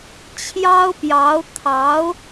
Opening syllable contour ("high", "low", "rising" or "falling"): high